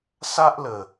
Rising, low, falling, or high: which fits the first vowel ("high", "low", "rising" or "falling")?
high